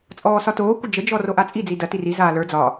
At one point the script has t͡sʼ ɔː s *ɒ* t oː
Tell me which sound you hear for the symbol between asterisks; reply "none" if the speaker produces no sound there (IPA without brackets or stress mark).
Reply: ɒ